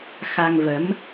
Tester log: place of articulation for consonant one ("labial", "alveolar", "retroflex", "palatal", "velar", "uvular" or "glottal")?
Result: velar